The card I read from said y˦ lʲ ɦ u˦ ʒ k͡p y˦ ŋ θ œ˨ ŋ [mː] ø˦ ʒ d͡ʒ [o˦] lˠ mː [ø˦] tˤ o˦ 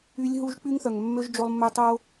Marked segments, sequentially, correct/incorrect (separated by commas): correct, correct, correct